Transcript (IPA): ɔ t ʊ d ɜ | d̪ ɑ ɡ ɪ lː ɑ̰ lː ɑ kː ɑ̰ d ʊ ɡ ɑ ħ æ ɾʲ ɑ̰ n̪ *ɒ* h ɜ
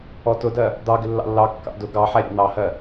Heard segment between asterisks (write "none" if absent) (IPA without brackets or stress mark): ɑ